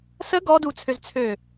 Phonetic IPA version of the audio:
s ə ɡ ɔ d u t͡sʰ ø z t͡sʰ ø

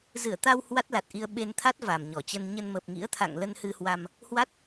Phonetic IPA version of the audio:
z ɨ˧˩ ə̯ t̪ a˧ w h w a˦˥ t̚ l a˨˩ t̚ ʔ i˧ ə̯ ɓ e˧ n t̪ʰ a˦˥ t̚ v a˨˩ m ɲ ɔ˧˩ t͡ɕ ə˧ n ɲ ə˧ n m ə˨˩ p̚ ŋ ḭ˧˥ ə̯ t̪ʰ a̰˧˨ ŋ l ə˧ n h ɨ˧ h w a˧ m | h w a˦˥ t̚

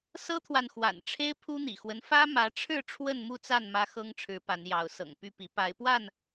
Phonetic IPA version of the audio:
s ɤ˦ t̪ʰ w a˨ n x w a̰˨˩ n ʈ͡ʂʰ e˦ ɪ̯ pʰ u˦ n̪ ḭ˨˩ x w ə˦ n f ä˦ m ä˨˦ ʈ͡ʂʰ ɻ̩˥˨ ʈ͡ʂʰ w ə˥˨ n m u˥˨ t͡s a˥˨ n m ä˦ x ɤ˦ ŋ ʈ͡ʂʰ ɻ̩˨˦ p a˨˦ n j ɑ˨˦ ʊ̯ s ɤ̰˨˩ ŋ p y˥˨ p i˨˦ p a˨˦ ɪ̯ p w a˥˨ n

